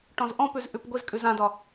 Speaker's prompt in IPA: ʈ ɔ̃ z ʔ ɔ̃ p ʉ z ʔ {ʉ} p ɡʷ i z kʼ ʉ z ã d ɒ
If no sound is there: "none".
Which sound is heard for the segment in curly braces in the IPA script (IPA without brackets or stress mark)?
ʉ